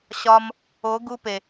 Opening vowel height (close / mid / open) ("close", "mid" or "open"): open